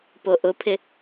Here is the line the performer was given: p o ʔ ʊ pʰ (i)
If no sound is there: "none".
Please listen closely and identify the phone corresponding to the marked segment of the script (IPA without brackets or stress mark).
ɪ